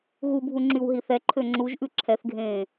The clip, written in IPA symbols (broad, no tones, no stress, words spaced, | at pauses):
ɣubʱu ŋ͡ǁywɦiθɛǃʰø ŋ͡ǁuʒʔʉ ǁʰɛθɡʱẽː